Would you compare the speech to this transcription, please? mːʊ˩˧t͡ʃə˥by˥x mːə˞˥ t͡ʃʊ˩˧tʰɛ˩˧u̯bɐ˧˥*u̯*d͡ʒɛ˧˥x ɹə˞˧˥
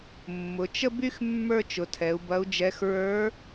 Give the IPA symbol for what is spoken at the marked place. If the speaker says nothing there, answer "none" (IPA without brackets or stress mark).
u̯